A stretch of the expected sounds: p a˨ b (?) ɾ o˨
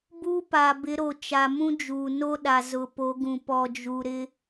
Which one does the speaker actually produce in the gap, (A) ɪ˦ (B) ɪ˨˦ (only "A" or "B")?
B